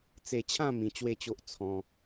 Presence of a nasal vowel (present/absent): present